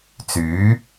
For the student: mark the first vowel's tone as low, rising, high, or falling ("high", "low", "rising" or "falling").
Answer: rising